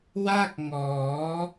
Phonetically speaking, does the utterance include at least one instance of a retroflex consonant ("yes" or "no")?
no